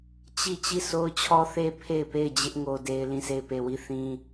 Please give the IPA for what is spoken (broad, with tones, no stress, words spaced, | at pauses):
t͡ɕi˦˨ t͡ɕi˦˨sʰo˦ʊ̯t͡ɕʰɔ˦θe˦ pʰe˦˨ɪ̯pe˦˨ɪ̯d͡ʑɪ˦ʔ ŋo˦de˦ɪ̯ lĩ˦˨se˦˨ɪ̯pe˦˨ wi˦˨ θĩ˦